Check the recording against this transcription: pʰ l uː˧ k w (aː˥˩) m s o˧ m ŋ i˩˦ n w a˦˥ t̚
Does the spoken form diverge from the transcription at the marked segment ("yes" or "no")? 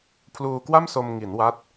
yes